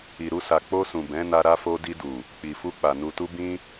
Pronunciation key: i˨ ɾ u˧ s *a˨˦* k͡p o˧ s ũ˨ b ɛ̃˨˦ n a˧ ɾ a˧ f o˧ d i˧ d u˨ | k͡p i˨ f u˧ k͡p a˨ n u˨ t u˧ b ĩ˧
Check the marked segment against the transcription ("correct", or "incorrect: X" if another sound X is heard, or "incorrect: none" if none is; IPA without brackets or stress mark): incorrect: a˨